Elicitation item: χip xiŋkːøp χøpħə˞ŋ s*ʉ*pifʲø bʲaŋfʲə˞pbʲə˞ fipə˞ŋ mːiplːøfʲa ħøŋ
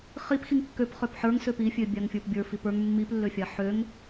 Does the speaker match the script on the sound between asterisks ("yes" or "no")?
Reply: no